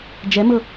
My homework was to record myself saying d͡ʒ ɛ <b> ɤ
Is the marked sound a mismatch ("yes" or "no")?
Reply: yes